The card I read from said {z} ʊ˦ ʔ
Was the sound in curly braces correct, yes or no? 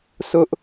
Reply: no